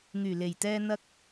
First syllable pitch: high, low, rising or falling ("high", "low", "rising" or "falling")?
low